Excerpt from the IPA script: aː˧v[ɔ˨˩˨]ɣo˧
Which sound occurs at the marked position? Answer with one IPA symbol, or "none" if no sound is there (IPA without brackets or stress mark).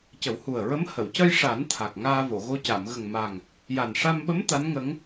o˨˩˨